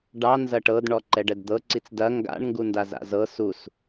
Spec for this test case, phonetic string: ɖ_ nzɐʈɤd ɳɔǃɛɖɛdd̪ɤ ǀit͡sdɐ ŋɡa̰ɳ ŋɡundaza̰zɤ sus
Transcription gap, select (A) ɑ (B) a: A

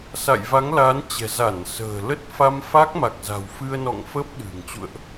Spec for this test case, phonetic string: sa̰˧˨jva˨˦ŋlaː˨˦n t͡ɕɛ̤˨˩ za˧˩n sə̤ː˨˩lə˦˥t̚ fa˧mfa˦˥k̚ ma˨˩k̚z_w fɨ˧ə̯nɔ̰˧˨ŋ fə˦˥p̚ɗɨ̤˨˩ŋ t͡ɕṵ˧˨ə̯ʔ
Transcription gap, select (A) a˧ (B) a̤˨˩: B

